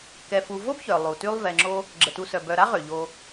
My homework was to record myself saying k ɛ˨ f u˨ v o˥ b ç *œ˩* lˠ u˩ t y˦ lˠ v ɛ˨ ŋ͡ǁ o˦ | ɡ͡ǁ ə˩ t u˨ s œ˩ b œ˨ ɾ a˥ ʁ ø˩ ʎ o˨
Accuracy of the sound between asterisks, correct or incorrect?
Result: correct